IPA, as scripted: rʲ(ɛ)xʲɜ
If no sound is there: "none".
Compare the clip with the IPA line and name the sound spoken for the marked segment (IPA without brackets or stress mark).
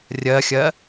ɜ